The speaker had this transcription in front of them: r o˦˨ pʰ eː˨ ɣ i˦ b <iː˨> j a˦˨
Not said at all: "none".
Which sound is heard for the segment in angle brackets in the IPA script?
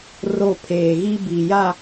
i˨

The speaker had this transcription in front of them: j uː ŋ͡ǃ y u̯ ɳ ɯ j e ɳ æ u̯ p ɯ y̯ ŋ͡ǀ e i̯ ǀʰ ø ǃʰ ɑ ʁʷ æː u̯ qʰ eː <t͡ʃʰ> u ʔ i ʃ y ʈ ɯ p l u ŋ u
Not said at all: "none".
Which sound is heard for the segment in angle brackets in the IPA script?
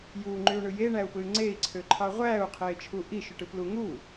t͡ʃʰ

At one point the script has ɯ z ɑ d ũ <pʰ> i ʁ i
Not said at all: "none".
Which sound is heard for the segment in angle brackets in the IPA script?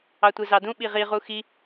ɓ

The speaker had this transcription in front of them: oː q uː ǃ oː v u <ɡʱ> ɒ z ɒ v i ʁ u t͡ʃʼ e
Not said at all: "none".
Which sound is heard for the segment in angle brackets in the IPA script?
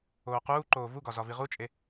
ɡ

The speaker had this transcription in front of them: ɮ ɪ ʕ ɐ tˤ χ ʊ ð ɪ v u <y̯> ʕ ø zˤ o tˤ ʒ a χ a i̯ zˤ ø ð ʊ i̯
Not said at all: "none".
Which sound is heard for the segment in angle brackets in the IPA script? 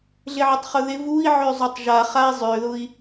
i̯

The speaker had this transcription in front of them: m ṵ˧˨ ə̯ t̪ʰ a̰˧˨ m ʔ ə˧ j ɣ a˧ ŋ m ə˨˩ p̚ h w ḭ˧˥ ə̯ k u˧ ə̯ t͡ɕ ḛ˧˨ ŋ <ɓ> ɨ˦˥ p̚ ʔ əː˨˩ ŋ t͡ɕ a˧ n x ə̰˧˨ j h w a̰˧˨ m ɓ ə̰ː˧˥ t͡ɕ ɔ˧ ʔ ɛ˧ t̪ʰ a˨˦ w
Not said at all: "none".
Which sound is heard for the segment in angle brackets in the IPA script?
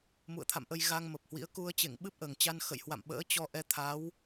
ɓ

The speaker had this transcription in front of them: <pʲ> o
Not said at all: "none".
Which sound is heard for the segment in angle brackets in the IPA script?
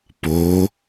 p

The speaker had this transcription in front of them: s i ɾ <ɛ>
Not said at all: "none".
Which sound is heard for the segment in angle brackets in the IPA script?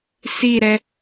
ɛ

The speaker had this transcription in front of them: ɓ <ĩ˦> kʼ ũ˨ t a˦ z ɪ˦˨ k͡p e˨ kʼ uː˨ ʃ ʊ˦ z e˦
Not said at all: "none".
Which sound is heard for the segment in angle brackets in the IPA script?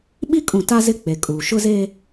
i˦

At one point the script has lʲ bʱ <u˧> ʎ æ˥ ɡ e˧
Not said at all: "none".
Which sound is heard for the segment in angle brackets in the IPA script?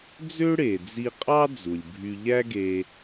y˧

